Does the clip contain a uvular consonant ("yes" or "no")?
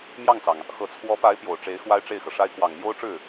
no